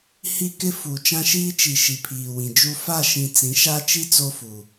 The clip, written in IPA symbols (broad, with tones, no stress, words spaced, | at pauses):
hi˦kɪ˦ fu˨ t͡ʃã˦ʃiː˦t͡ʃi˨ ʃi˨pʰiː˨wĩ˨d͡ʒu˦ fa˦˨ʃĩ˨ t͡sĩ˨˦ʃa˦t͡ʃi˦ t͡so˦fu˨